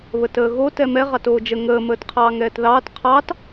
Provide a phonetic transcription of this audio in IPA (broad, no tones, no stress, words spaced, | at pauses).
βətəːɣo tɛmɛ ʁɑtoːd͡ʒə ŋəː məːtqʰɑːŋɛːtðɑːt qʰɑt